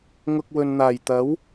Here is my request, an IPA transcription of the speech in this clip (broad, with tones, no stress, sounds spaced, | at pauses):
ŋ ʊ˨ k̚ w ɵ˨ n n̪ aː˨˩ j t̪ ɐ˨˥ w